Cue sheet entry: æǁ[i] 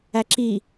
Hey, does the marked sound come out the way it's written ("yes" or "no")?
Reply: yes